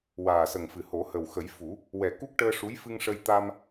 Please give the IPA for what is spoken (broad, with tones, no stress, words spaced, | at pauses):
waː˨˩sə˨˩ŋfɨ˨˩ho˨˩˦ hə˨˩wxə˨˩˦jfu˨˩˦ | wɛ˨˩ku˦˥k̚ʈəː˧ ʂu˧˥jfɨ˧ŋ ʂə˧j t̪a˧m